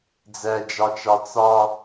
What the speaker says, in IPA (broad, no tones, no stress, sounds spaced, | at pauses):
d͡z æ d͡ʒ ɑ t͡ʃ ɑ t͡s ɑ